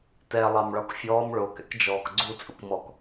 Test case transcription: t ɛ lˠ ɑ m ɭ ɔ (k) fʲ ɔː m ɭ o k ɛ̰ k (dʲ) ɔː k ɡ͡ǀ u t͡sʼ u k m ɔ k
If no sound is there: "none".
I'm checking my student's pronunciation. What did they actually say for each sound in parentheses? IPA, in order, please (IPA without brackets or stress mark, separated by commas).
k, d͡ʒ